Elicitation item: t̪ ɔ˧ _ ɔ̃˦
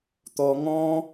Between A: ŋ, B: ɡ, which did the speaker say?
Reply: A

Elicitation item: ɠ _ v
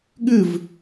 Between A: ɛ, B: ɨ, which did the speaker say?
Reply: B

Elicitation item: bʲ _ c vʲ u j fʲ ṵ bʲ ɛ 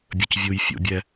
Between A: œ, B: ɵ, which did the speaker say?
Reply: B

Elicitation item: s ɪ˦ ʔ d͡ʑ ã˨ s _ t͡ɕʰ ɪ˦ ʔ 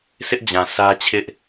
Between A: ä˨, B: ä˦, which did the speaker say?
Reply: B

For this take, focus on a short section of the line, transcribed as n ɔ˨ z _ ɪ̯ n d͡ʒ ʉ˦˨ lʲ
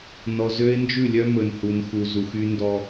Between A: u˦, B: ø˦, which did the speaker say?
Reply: B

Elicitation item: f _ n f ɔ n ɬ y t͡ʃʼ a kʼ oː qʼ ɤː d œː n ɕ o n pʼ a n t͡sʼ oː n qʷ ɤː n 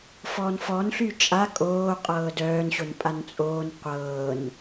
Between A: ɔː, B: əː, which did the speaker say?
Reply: A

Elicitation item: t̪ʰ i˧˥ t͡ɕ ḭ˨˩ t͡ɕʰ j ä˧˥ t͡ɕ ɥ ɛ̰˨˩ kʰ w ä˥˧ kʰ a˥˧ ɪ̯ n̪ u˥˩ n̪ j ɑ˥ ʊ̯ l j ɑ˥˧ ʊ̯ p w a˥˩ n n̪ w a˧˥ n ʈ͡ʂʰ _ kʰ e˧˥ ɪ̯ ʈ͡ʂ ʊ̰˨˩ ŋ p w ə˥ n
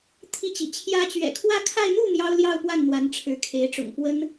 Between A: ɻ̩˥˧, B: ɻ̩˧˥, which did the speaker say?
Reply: B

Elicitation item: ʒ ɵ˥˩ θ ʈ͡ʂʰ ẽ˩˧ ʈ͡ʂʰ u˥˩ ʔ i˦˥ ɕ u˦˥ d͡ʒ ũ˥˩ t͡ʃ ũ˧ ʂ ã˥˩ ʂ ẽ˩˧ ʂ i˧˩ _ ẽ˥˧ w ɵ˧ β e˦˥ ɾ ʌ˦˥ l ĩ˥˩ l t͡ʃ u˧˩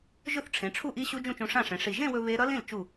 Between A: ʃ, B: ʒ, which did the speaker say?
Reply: B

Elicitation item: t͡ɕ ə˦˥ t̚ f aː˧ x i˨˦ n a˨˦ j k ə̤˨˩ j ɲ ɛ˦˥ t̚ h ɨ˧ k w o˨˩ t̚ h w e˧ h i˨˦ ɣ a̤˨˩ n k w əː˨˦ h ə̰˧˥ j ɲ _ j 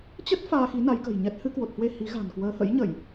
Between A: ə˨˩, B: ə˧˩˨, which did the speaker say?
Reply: B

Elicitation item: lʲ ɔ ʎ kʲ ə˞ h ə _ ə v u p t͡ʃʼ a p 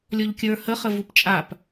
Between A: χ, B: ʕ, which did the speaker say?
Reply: A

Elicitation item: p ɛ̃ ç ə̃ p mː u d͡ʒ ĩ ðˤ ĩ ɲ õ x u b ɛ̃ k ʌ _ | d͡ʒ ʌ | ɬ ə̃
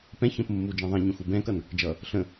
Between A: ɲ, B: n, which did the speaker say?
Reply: B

